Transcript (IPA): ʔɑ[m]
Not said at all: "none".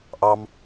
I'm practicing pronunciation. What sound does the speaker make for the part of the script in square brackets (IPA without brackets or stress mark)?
m